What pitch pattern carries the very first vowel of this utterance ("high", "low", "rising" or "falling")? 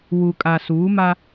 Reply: low